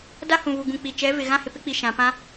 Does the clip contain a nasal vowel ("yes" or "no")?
yes